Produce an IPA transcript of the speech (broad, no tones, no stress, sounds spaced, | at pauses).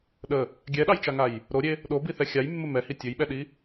ɗ ə | ɡʲ ɛ ɗ ɑ j t͡ʃ a ŋ a j | ɾ o ɾʲ e | ɗ o b i θ ɛ xʲ a j mː ə m ɛ h i tʲ ɵ j ɓ ɛ ɗ i